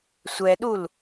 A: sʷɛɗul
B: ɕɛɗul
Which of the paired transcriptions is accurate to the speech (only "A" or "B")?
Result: A